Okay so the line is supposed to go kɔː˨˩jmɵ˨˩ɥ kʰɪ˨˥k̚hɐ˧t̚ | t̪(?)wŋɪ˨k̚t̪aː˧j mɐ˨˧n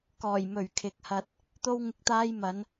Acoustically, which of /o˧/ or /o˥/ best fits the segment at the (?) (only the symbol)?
o˧